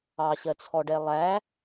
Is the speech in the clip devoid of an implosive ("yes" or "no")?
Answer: yes